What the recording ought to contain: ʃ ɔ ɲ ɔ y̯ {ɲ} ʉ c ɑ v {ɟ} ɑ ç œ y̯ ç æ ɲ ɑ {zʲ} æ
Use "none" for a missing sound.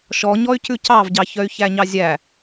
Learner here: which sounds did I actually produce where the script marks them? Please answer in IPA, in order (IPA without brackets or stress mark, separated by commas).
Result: c, ɟ, zʲ